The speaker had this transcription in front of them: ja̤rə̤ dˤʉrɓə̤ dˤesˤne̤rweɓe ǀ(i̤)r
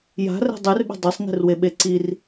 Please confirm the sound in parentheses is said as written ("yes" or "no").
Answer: no